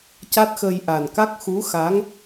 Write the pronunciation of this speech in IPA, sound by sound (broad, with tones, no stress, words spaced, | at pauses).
ca˦˥t̚xə˧jʔa˨˩n ka˦˥k̚xu˧˥xa˧˥ŋ